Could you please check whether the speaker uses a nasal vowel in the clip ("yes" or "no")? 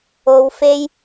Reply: no